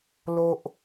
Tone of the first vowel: low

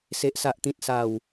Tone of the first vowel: high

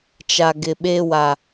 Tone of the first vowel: low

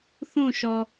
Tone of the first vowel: falling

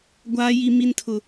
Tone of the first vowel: low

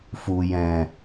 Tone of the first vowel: low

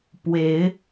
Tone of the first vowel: rising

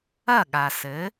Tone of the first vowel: falling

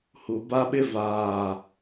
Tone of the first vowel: low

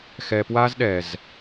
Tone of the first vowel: low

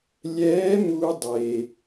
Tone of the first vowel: rising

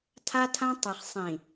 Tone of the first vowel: high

